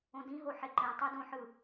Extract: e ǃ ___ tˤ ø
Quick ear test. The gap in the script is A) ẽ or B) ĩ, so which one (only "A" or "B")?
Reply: A